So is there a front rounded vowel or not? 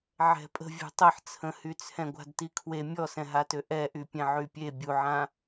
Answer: yes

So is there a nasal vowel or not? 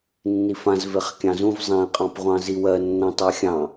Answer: yes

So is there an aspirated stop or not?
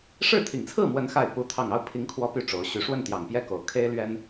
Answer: yes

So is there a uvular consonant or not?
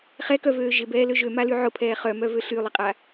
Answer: yes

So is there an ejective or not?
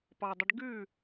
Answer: no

